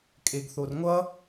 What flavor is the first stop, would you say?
ejective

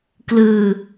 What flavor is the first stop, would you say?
plain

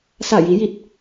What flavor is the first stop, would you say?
plain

